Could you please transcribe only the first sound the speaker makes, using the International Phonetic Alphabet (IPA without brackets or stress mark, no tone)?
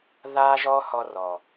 ð